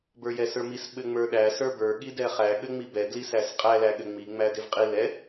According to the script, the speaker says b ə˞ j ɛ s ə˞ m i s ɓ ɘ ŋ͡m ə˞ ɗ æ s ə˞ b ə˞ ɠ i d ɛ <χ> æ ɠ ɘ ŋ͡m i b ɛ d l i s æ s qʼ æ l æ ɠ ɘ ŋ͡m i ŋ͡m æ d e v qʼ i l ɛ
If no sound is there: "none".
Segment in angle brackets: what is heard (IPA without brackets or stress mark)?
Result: χ